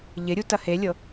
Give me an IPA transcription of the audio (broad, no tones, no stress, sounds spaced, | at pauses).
ʎ ɪ ɾʲ u t ɐ h e lʲ ɤ